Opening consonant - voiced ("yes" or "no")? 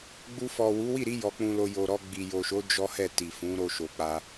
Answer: yes